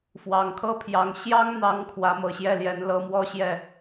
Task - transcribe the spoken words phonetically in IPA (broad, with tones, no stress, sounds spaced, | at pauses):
f w ɑ˨˩ ŋ kʰ ɤ˥˩ pʰ j ɑ˧˥ ŋ ɕ j ɑ˥ ŋ n̪ ɑ˧˥ ŋ kʰ w ä˧˥ m ɤ˨˩ ɕ j ɛ˥˩ l j ɛ˧˥ n l ɤ˧˥ m w ɔ˥˧ ɕ j ɛ˥˩